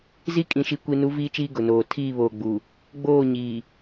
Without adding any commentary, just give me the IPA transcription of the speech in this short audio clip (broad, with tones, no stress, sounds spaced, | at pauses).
z i˦ kʼ ĩ˨ ʃ i˨ kʷ i˨ n u˨˦ v iː˦ t͡ʃ iː˦ ɡ ʊ˨ n oː˨ tʰ iː˦˨ β oː˨ ɡ͡b u˨ | ɡ͡b oː˦˨ ɲ iː˨